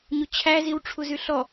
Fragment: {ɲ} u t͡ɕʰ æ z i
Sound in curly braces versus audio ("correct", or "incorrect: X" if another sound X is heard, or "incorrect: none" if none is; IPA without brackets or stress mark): correct